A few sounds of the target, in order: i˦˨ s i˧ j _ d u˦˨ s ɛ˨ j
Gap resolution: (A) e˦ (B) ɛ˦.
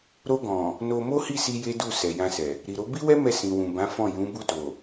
A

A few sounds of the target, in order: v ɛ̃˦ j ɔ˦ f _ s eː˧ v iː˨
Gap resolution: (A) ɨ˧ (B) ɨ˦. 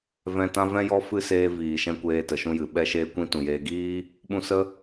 B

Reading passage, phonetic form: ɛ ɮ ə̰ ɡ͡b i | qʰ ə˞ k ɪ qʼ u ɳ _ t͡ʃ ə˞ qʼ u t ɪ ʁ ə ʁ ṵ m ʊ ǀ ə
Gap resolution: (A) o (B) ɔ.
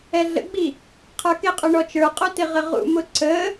B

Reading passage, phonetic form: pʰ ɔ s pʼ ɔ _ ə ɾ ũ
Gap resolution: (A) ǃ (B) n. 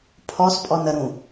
B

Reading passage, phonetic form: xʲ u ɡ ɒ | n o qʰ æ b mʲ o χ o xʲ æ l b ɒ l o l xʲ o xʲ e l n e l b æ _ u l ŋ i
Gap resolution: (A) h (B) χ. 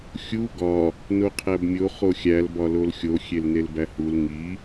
A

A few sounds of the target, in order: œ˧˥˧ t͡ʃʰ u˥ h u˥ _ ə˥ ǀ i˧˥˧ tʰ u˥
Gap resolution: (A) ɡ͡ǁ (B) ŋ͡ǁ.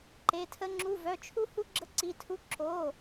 A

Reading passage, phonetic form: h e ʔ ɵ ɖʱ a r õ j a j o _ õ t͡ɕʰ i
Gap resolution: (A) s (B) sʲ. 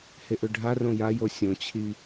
B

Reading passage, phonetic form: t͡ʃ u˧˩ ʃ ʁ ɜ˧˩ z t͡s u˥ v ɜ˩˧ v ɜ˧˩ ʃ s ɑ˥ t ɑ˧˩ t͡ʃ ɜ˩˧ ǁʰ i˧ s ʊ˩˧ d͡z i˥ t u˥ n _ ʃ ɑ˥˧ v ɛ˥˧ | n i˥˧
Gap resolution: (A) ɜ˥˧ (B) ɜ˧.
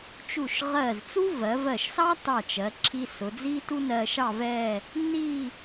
B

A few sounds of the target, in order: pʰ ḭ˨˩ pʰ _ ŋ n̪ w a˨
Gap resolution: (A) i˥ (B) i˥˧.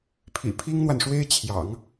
A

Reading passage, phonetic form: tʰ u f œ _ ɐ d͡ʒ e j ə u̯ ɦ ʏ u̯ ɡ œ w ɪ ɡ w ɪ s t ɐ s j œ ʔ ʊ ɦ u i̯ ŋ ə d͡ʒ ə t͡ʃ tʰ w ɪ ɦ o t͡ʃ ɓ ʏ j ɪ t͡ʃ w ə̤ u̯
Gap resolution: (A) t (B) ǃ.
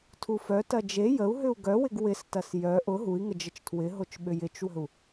A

